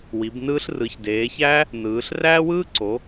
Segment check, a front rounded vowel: absent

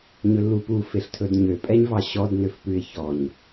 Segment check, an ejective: present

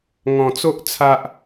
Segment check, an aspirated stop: present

